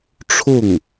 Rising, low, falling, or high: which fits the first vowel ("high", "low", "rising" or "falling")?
falling